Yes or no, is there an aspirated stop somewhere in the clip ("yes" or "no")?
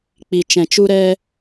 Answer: no